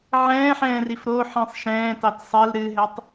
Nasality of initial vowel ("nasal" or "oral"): nasal